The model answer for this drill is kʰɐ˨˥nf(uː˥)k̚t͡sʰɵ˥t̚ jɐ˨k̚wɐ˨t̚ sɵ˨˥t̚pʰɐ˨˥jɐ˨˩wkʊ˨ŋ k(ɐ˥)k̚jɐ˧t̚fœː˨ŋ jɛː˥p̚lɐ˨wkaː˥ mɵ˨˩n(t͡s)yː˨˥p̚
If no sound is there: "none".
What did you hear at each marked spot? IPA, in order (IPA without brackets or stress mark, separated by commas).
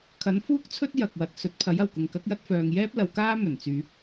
uː˥, ɐ˨˥, t͡s